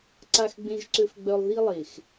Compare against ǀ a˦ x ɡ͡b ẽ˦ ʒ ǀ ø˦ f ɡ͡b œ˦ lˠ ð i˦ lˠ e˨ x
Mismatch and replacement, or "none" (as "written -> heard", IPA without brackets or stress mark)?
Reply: none